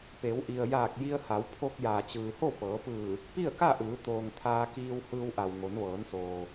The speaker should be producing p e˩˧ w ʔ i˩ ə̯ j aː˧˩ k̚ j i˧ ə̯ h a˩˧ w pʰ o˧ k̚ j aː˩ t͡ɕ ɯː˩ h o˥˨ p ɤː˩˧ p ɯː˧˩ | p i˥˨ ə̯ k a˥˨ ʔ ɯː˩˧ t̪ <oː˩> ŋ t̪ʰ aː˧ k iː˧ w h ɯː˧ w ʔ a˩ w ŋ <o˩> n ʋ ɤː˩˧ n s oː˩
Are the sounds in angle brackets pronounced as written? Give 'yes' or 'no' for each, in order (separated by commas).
yes, no